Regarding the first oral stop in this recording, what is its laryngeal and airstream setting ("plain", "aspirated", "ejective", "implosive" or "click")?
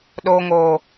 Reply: implosive